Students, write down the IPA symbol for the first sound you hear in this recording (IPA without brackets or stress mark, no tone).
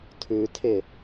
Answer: tʰ